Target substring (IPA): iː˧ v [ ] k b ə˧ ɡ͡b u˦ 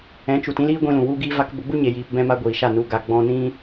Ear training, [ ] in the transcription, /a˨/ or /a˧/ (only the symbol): a˧